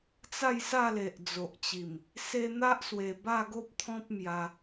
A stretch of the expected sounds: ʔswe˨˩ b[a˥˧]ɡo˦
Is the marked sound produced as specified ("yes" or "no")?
yes